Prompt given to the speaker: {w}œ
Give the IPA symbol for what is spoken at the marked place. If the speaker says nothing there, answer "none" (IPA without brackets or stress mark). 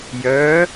j